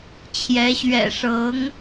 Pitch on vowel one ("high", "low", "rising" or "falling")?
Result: rising